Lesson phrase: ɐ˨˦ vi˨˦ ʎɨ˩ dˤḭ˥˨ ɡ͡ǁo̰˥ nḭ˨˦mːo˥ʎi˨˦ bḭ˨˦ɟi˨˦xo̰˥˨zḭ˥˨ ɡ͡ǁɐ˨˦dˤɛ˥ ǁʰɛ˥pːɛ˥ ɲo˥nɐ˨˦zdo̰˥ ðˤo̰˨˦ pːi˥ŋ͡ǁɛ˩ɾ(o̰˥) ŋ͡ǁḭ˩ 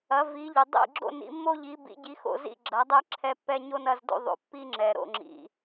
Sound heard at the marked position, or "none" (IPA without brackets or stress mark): o̰˥˨